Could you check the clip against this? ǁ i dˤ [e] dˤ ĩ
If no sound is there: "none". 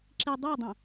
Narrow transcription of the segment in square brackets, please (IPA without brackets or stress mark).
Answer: e